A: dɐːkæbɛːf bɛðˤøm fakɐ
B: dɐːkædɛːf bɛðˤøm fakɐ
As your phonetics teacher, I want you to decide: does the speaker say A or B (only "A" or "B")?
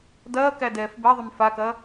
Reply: B